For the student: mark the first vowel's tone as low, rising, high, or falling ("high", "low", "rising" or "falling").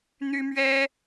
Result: high